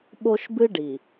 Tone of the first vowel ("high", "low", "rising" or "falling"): high